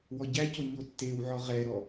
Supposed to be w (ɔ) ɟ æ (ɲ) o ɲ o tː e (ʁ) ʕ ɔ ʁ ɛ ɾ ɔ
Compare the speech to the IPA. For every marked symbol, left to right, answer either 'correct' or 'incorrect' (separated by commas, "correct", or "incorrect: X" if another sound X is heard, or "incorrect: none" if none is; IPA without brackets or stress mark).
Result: correct, incorrect: c, incorrect: w